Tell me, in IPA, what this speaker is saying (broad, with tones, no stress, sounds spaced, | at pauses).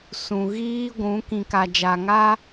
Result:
s ũ˨ ɣ iː˦ ɡʷ ũ˨˦ k ĩ˨ k a˨ d͡ʒ a˨ ŋ a˦